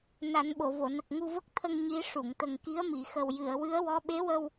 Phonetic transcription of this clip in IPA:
na˨˩˦nɓo˨˩˨vo˨˩˨ nə˨˩k̚ ŋu˧və˦˥k̚t̪ʰə˧ŋ ɲi˧˥ʂu˨˩˨ŋ t̪ə˨˩ŋki˧˥ə̯mi˨˩˨ xə˨˩wjɨ˨˩˨ə̯ wɨ˧˥ə̯wɔ˧˥ ɓe˧˥wə˧w

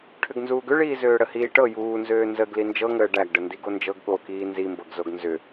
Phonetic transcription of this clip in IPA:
ʈʰʏɡnzuːɡʏɭiː zøːɽəhiːʈɤ juːnzøː nzəɡ lind͡ʒɤŋəː ɖæɡɖəndiɡ ond͡ʒɤɡ ɠokiː nzimbɤɡzoɡ nzʏ

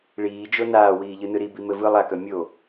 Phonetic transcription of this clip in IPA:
ɭiːd͡ʒo naːwiːʎɯnɯ ɾibimɘ vɯ lˠakœ mʲo

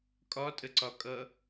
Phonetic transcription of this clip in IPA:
kʼɒtʼəǀɒkʼʌ

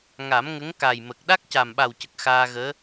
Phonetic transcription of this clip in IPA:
ŋa˨˩˦mŋə˧˥ŋ ka˨˩jmə˨˩k̚ ɗa˦˥k̚ca˨˩mɓa˨˩wcə˨˩k̚ xaː˧ɣəː˧˥

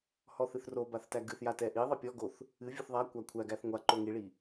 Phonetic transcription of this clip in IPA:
hɔθɨθrobaθ tæɡɨθja tɛʔiðˤɛ pʲɔɡoθ | ɨvʲɨθ ðˤakʷa kʷʰæɡæθ ŋʷa ǃoŋiɭi

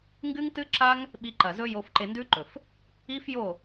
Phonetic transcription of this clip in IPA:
ŋɡɨ˦ŋtɨ˦ ǁa˦ŋ | ɓi˧ǃɐ˨zɵ˦ jo˧fǃe˧ndʉ˦ǃɵ˨f | i˦fjo˦˨

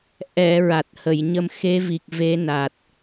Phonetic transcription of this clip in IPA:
ʔɛ˨˩˨ ɹa˨˩t̚hə˨˩˨jɲə˧m xe˧˥ vi˨˩k̚ve˧˥na˨˩t̚

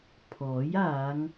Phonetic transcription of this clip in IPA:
pʰɔː˨˥jaː˨˧ŋ

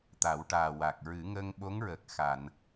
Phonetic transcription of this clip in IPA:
t̪a˨˩˦wʈaː˨˩wa˨˩k̚ ɹɨ˨˩˦ŋə˧ŋ ɓo˧˥ŋɹə˨˩k̚ xa˨˩˨n

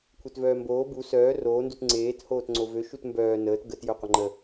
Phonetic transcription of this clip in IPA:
kʷʰetvœːmboː bu sœː roː ndutŋ͡ǀeːt hoːtŋ͡ǀovø ʃutmbœː nəːt ɡət jœqʷəŋ͡ǃə

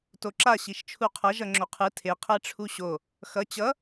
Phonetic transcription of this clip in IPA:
toǁa ɕiʃt͡ʃʰuqʰʌ ʒʌŋ͡ǁoqʰɯ tʰe qʰɛʈ͡ʂʰuɕo | xʌ t͡ɕʌ

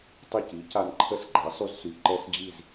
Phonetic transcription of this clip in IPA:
tˤə˥˩ci˩˥ca˧n ǃʰə˥˩sɡ͡ǃa˩˥sˤy˧zsy˩ ǃɛ˥sd͡ʑi˥˩z

